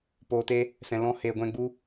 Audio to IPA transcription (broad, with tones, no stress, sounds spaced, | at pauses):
p oː˨ t e˧ | s ɛ̃˨ l ɔ̃˧ h eː˨ ɡʷ ɛ̃˧ ɡ͡b u˧